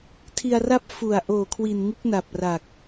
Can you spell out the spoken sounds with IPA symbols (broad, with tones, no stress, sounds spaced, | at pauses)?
tʰ i˧ a̯ r a˥˩ p̚ f u˨˩ a̯ ʔ oː˨˩ kʰ w i˨˩ n ŋ u˦˥ k̚ n a˨˩ p̚ r a˨˩ k̚